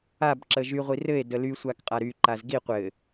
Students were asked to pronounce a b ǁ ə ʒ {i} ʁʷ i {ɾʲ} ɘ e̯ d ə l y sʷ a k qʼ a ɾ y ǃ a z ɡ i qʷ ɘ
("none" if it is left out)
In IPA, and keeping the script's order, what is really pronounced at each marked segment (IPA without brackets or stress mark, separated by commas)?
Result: y, r